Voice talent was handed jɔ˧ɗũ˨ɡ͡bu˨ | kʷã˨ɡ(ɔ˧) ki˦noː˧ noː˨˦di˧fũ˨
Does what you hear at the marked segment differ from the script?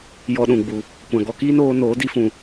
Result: no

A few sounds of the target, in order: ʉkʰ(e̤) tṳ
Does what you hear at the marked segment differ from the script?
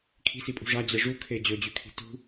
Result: yes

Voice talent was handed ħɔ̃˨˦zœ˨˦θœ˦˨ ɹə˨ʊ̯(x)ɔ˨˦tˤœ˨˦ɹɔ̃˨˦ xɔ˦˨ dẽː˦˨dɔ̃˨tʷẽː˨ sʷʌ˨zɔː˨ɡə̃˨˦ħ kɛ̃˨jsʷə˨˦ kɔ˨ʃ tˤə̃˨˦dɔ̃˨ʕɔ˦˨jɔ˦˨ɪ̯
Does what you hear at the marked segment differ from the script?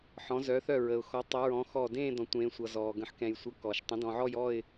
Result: no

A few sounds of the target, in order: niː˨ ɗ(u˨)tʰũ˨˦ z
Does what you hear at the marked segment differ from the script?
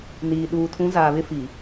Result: yes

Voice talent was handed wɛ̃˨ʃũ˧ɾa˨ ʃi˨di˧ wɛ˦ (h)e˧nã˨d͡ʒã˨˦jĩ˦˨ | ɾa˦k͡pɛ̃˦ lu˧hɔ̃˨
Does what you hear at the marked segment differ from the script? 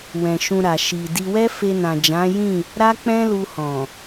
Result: yes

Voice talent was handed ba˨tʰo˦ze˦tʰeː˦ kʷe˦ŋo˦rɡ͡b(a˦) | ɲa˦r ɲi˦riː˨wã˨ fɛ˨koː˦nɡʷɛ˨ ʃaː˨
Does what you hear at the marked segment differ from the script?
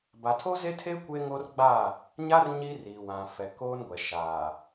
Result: yes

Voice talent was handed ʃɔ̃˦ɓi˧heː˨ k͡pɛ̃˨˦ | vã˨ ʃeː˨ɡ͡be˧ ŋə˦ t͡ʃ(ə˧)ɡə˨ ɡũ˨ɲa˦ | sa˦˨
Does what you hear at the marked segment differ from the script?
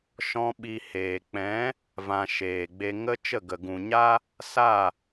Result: yes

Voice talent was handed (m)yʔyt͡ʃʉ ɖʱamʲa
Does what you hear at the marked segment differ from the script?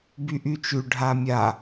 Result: yes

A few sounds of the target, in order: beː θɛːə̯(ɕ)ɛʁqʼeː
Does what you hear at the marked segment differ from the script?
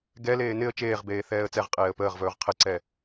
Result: yes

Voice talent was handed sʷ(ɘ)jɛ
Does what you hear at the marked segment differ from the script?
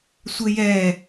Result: no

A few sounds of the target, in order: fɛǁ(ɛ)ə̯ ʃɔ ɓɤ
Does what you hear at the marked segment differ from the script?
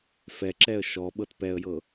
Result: no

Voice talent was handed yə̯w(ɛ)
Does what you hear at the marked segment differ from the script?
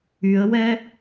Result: no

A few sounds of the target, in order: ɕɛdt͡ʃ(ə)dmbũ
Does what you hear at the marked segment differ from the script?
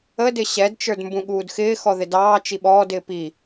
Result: yes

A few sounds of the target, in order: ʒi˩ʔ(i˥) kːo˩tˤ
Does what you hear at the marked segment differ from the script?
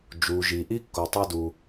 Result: no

